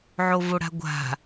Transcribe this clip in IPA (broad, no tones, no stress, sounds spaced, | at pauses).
ʕ o v o ɽ a̤ ɡʷ a̤